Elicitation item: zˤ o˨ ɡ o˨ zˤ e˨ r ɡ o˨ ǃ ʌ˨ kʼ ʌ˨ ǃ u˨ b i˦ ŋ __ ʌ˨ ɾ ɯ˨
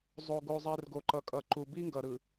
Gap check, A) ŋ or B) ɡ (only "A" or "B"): B